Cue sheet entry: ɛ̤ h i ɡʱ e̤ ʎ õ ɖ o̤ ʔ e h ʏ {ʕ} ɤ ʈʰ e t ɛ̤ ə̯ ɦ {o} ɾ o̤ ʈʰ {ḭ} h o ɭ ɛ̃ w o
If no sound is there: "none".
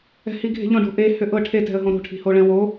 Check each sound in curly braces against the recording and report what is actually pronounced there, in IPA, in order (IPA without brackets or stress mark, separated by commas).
ʔ, õ, i̤